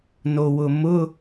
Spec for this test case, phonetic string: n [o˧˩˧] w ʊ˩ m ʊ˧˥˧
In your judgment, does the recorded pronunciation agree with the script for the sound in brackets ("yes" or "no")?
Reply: no